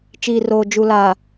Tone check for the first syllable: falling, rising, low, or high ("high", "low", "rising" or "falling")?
low